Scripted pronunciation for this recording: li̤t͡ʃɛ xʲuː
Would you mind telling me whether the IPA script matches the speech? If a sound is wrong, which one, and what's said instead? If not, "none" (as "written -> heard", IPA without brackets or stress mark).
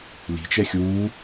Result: none